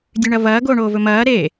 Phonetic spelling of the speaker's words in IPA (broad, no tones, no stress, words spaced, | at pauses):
dʲʉɳɐvɐː ɡoːɳoːvɵmɐː ɾe